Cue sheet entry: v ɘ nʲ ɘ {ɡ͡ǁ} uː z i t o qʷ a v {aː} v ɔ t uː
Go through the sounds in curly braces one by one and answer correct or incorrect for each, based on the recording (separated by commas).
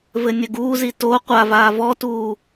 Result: incorrect, correct